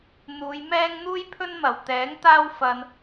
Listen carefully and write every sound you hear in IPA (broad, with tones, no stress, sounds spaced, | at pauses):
n̪ uː˨˧ j m ɛː˥ ŋ n̪ uː˥ j pʰ ɵ˥ n m ɐ˨˩ w t̪ ɛː˨˥ ŋ t̪ aː˥ w f ɐ˧ n